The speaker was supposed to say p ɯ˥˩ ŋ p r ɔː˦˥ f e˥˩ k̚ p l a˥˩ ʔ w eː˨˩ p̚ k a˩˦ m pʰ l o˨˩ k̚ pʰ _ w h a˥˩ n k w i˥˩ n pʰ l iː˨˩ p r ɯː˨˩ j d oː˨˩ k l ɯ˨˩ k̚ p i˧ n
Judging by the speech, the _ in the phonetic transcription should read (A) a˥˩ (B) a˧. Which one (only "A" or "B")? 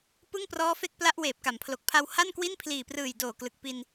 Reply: B